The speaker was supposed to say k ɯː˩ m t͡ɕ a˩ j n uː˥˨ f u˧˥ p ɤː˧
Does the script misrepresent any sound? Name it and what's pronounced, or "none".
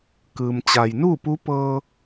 f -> p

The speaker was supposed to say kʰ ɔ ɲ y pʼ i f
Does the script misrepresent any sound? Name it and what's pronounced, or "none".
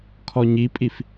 y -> i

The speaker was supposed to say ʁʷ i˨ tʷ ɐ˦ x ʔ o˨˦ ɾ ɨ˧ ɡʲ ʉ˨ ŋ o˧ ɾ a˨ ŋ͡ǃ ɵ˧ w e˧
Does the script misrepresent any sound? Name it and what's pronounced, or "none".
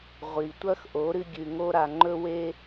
none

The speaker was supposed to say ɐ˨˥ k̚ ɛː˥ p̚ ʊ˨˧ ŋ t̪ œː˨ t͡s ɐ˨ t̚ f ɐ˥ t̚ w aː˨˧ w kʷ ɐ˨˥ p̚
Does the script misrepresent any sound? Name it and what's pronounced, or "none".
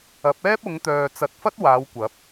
k̚ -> p̚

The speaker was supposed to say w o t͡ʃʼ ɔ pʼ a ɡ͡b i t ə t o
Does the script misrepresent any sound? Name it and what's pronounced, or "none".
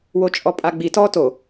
ə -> ɔ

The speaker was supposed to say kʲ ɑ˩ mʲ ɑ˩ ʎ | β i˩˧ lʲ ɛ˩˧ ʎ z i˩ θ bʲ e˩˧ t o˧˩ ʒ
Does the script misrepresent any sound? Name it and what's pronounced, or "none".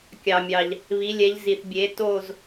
ʒ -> z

